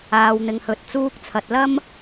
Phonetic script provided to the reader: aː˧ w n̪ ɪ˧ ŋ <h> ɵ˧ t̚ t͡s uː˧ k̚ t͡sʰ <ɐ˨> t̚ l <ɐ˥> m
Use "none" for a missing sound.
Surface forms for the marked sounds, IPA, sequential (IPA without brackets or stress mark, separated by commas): h, ɐ˨, ɐ˥